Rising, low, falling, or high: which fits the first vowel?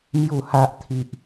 low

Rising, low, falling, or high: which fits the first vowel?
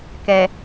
low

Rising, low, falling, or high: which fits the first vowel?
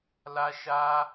high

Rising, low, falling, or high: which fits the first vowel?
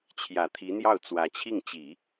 low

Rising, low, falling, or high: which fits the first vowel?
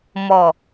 low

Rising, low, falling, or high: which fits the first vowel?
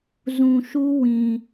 low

